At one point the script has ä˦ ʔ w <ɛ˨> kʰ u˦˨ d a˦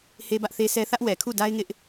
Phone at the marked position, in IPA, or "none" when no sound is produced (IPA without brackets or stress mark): ɛ˨